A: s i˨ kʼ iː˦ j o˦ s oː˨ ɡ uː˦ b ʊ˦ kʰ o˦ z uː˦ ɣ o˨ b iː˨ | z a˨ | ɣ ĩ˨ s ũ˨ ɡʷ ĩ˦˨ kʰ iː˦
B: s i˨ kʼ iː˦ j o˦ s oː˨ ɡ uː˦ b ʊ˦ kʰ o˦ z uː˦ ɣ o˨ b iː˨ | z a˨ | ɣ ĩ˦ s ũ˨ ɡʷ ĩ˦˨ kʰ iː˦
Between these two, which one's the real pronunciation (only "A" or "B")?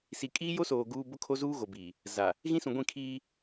B